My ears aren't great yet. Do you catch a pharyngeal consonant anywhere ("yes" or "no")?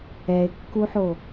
yes